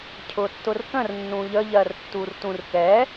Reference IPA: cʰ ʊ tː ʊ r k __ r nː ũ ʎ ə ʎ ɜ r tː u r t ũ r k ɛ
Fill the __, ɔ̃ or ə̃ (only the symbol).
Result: ə̃